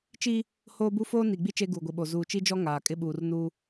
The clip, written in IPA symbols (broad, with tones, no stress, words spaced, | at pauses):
t͡ʃi˦ | hoː˦bu˦ foː˦ni˨ɡ͡bi˦ t͡ʃe˦ɡuː˨ɡʷi˨ɓo˨ zuː˨t͡ʃi˦d͡ʒɔ˦ ŋaː˨kʼɪ˦ɓuː˨rnuː˦